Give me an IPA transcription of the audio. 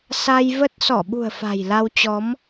s a˧ j v ə˦˥ t̚ s ɔ˧˩ ɓ ṳ˨˩ ə̯ f a̤˨˩ j l a˧ w t͡ɕ ɔ˨˦ m

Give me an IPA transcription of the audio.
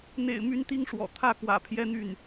n̪ ḛ˨˩ ɪ̯ m y˧˥ n t̪ i˥ ŋ ʂ w ɔ̰˨˩ t̪ʰ ä˥˩ k w ä̰˨˩ pʰ j ɛ˥ n̪ y˥˩ n

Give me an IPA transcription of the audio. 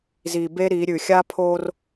z i˨ b e˦ ɾ i˨˦ ɾʲ ʉ˨ xʲ a˦ pʰ o˦ r

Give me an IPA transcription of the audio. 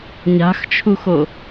ɲ a̤ x t͡ʃʰ u x o

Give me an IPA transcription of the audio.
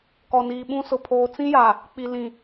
k ɔ˨ n iː˨ ɓ ũ˦ s ʊ˨ pʰ oː˨ t͡s ĩ˦ j a˨ | k͡p i˨ l ĩ˨

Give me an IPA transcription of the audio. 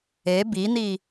e b i n i

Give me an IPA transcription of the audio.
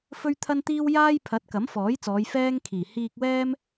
f ɵ˥ ɥ t̪ʰ ɐ˥ n t̪ iː˥ w j aː˥ j pʰ ɐ˨˥ t̚ k ɐ˨˥ m f ɔː˨˥ j t͡s ɔː˨˧ j f ɛː˥ ŋ kʰ iː˨˩ h iː˧ k̚ w ɛː˥ m

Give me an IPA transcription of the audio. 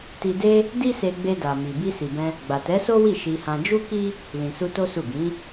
t i˧ d e˦ | d i˦ s e˧ ɡ͡b e˧ d a˨ m i˨ b i˧ s i˨ b ɛ̃˧ | ɡ͡b a˨ t ɛ˨˦ s o˦ w i˦˨ ʃ i˧ h ã˧ d͡ʒ u˦ k i˦ | l ĩ˨ s u˧ t o˦ s u˦˨ ɡ ĩ˨˦

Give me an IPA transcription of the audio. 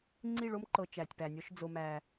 ŋ͡ǀ i˦˨ ɭ o˦ m ǃ ɤ˨ t͡ʃ æ˨ tʲ p æ˨ nʲ ɔ˦ ʃ d͡z o˨ m æ˨

